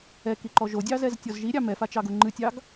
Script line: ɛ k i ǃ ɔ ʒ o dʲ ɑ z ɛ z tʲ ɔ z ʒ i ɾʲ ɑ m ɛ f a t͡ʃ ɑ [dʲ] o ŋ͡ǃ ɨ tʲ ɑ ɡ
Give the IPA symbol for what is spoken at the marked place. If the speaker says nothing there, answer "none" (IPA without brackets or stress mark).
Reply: ɡ